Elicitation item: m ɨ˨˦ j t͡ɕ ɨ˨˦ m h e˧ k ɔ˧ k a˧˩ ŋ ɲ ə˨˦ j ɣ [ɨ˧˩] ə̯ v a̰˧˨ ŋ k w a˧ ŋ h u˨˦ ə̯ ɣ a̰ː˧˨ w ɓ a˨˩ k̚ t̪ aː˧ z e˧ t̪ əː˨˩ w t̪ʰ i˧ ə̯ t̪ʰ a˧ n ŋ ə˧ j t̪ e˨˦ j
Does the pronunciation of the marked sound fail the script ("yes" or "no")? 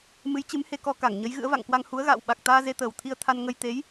yes